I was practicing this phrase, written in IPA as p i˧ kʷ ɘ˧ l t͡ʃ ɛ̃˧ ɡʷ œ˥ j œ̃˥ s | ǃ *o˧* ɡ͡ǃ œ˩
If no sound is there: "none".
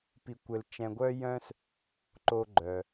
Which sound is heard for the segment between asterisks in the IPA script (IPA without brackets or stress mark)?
o˧